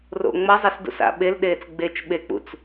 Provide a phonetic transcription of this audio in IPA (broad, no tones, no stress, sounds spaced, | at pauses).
r o̰ ŋ͡m ʌ zˤ ɐ s d ṵ s a̰ ɓ e l ɗ eː t͡s ɡ͡b e t͡ʃ ɓ e k͡p ṵ t͡s